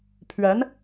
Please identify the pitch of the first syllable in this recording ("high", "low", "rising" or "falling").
rising